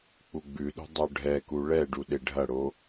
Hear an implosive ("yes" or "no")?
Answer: yes